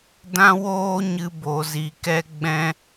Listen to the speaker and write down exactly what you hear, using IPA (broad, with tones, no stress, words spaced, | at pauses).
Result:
dã˦woː˦ɲɨ˧ bo˨zi˨ kɛ˦ɡ͡bɛ̃˦